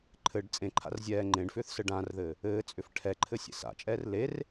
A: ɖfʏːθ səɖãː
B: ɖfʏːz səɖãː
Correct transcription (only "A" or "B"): A